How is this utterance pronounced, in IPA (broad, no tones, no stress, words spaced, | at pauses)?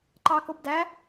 ǃɑkobdæ